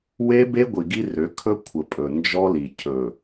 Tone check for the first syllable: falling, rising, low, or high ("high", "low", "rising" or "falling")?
high